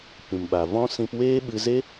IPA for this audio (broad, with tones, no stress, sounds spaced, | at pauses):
p ĩ˨ m ɓ a˨ v ɔ̃˦ s ĩ˧ p w eː˦ ɓ ɨ˧ z e˦